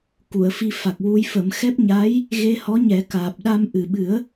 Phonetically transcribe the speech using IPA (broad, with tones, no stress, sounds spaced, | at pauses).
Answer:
k u˨˩˨ ə̯ f i˧ f a˨˩ k̚ w u˧ j f ə˨˩˦ m x ɛ˦˥ p̚ ɲ a˧˥ j | ɣ e˧ h ɔ˧˥ ɲ ɛ˨˩˦ k aː˨˩ p̚ ɗ a˧ m ʔ ɨ˨˩ ɓ ɨ˨˩˦ ə̯